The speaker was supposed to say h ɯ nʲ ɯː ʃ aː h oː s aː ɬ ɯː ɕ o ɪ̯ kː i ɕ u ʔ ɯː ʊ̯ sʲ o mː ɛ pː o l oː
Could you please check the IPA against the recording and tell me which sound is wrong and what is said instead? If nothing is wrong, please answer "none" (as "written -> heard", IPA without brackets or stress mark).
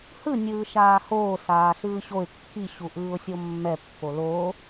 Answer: none